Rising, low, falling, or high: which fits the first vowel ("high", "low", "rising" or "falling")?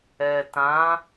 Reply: low